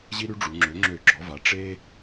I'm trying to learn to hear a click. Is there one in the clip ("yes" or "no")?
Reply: yes